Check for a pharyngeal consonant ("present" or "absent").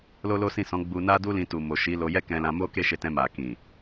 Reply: absent